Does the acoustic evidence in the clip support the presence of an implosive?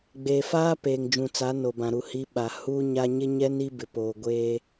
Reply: yes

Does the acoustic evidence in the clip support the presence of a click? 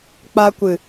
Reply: no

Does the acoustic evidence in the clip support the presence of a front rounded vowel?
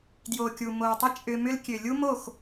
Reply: yes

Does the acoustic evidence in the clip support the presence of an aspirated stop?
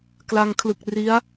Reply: yes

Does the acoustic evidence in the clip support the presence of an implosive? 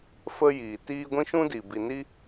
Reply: no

